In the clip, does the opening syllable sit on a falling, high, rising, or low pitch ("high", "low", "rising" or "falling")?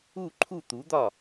falling